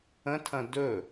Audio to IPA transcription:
ə̃tʰɐ̃ dɵ

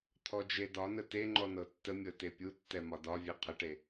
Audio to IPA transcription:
t̪ʰɔd͡ʒedɒnə te ŋ͡ǃɔnɤtːəmʲɤ tepʲutːɛ mɒdɒvʲe qʰəʈe

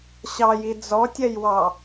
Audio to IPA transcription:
ɕɑji d͡zɔtʲɛjwɑ

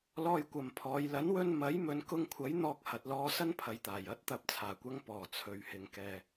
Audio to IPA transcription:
lɔː˧jkʷɐ˨mpʰɔː˨˧j lɐ˨˥nwɵ˧nmɐ˨˥j mɵ˨˧n kʊ˧ŋkʷʰɐ˨˥j n̪ɔː˧k̚hɐ˨t̚lɔː˧ sɐ˥npʰɐ˨jt̪aː˨˩j ɐ˨˥t̚t̪ɐ˨p̚ t͡sʰaː˨˩kʷɐ˧ŋ pɔː˨˩ t͡sʰɵ˨ɥhɪ˨ŋkɛː˨

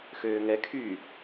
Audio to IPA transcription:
xøːŋɛkʰyː

